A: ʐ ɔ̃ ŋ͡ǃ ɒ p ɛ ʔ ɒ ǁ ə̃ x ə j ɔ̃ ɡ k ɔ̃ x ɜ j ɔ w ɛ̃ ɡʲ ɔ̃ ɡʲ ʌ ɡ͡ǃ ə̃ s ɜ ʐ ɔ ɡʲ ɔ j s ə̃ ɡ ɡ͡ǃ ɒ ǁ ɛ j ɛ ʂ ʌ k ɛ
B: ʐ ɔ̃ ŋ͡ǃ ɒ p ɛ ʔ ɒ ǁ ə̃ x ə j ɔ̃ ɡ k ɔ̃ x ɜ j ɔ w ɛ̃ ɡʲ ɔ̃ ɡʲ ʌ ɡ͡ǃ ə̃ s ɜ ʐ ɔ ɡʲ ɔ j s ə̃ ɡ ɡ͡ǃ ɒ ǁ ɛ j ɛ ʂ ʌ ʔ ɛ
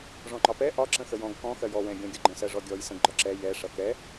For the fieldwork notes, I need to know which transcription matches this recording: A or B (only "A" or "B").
A